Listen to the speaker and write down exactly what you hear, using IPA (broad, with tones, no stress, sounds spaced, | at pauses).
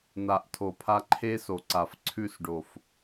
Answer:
n̪ a˨ ʔ tʰ o˨ pʰ a˧ ǃʰ e˦ s o˨ ǀ a˨ f ǀʰ ʉ˦˨ s ɖ o˨ f